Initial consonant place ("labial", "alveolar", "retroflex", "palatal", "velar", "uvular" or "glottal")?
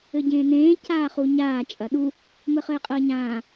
palatal